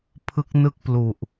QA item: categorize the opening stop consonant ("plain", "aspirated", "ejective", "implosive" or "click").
aspirated